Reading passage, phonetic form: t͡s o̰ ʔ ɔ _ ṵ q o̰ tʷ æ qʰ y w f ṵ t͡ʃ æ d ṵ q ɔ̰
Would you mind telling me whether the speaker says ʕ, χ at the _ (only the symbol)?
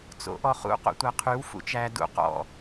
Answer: χ